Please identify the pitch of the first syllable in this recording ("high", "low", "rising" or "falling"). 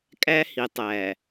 high